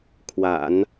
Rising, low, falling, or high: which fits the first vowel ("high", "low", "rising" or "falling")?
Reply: low